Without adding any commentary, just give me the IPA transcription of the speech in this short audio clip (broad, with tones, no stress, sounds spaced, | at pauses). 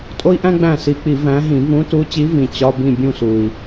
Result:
tʼ o˥ i̯ ʔ æ̃˥ ɡ͡b æ̃˥˩ s i˨˦ k͡p i˧˩˧ v æ̃˨˦ ɦ ĩ˧˩˧ v ũ˨˦ t u˨˦ t͡ɕ i˨˦ v ĩ˨˩ t͡ɕ ɒ˧˥˧ b ĩ˥˩ bʲ ũ˥˩ s u˨˩ i̯